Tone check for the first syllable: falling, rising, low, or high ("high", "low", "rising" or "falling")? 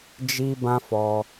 high